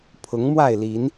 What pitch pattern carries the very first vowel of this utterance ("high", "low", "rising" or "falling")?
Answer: rising